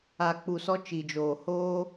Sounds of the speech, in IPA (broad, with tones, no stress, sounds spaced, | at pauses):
a˨ k͡p u˨ s ɔ˧ t͡ʃ i˨ d͡ʒ oː˨ h oː˧